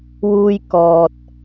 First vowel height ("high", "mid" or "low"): high